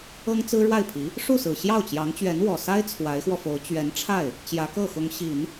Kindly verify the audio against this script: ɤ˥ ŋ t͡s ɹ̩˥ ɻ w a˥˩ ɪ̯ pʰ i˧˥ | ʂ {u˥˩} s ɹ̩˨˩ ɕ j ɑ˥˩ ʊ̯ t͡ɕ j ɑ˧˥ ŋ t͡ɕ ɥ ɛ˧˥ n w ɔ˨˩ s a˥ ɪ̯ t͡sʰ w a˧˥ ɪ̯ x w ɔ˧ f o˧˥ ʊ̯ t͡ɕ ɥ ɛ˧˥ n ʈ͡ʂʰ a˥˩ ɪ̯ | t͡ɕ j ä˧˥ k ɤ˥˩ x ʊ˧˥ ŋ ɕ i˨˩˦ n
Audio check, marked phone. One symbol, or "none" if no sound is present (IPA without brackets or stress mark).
u˥˩